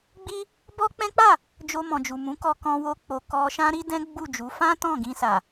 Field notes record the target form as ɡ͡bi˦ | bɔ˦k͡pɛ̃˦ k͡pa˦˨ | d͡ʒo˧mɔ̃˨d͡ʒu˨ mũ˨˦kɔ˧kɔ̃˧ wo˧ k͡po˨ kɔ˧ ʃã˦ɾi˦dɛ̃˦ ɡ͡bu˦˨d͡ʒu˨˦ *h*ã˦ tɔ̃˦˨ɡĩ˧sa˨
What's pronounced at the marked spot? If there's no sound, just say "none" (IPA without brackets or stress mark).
f